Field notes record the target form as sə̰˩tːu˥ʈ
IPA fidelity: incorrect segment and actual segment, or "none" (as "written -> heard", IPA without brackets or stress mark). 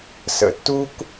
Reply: ʈ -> k